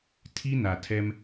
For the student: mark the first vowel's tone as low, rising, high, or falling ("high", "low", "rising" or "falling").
high